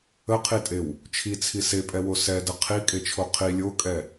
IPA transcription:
ə qʰ i tʼ e w | t͡ʃʰ i t͡sʰ i s e pʼ ɛ w o s ɛ d ə qʰ i kʼ e t͡ʃʰ o qʰ i lʲ o kʼ ɛ

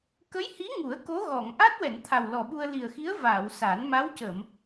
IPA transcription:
k ə˧˥ j h i˧˥ ŋ u˨˩˦ ə̯ k o˧˥ ɣ ɔ˨˩˨ ŋ ʔ a˦˥ t̚ w ɛ˨˩˨ n t̪ʰ a˨˩ w l ɔ˨˩ ɓ u˧ ə̯ l i˨˩ ə̯ x i˧˥ ə̯ v aː˨˩˨ w s a˨˩˦ n m a˧˥ w c ə˨˩˨ m

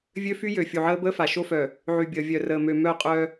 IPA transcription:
vʲ ø˦ f y˦ j ø˨ fʲ u˨ ʕ əː˦ b əː˦ f a˨ ʃ o˦ f œ˨ | ʕ y˨ bʲ əː˨ vʲ œ˨ r əː˨ m ø˨ m œ˦˨ qʼ œ˦

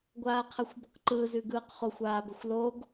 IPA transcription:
ɡʷ aː qʰ əː xʷ b ʊ q ǃ ɯː z ʉ ɡ ɯː q χ ʊ xʷ aː b ə xʷ l o ɡ

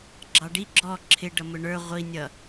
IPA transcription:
ɡ͡ǁ ɑ ɖ i ɡ͡ǁ ɔ ǁʰ ɪ ɖ ʌ m ʊ ɳ ə˞ ʁʷ i nʲ ʌ

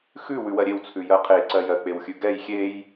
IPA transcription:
x ʉ w ʉ w ɜ ɾʲ e w t͡sʰ ʉ j ɜ qʰ e ǀ ɜ j ɜ k͡p e w xʲ ʉ ɡ ɛ j xʲ e j

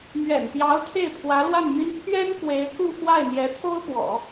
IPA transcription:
m ɥ ɛ̰˨˩ n p j ɑ˧˥ ʊ̯ t̪ʰ e˥˩ ɪ̯ pʰ w ä˧˥ l w a˥˩ n m y˥ n pʰ ɥ ɛ˥ n k w e˧˥ ɪ̯ k u˥˧ f w a˥˩ ɪ̯ n̪ j ɛ˧˥ t̪ʰ o˥ ʊ̯ p w ɔ̰˨˩˦

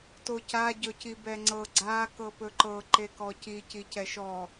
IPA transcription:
t o c a ɟ ɵ c i b ɛ ŋ͡ǀ ɤ ɡ͡ǀ a k ɤ p ɵ ǃ ɤ ǃ e k ɔ c i c i c ɛ ʃ ɔ

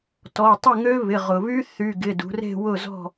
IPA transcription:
t ɔ˩˧˩ tˤ ɪ˥˨ ŋ ø˦˥ β ɪ˩˧˩ ʁ ʊ˩ β y˦˥ θ y˩˧˩ ɡ ɪ˩˧˩ d ṳ˩˧ r e̤˥˨ w ʊ˥˨ z ɔ̤˥˨

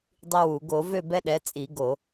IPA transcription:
dˤ i˦ w u˧˩˧ ɡ o˧˩˧ v ø˥˨ b ɛ˦ ɗ ɛ˩˥ t͡sʼ i˧˩˧ ɡ o˧˩˧

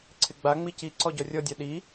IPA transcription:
ǀʰ ɪ ɡ͡b a ŋ͡m i c i ǀ ɔ ɟ ɔ rʲ ɔ dʲ a ɗ i

